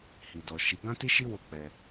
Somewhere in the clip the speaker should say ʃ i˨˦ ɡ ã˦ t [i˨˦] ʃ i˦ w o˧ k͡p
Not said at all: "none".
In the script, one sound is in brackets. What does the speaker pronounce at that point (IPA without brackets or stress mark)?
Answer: i˦